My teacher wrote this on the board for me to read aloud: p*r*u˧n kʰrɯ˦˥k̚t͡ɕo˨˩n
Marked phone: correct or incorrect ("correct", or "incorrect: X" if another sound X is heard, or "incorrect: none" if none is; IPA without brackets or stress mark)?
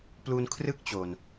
incorrect: l